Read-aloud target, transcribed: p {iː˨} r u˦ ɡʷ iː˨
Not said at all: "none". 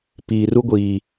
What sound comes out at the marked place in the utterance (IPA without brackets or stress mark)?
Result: iː˨